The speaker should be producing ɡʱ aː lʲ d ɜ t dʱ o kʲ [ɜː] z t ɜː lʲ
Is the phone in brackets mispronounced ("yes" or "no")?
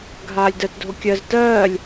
yes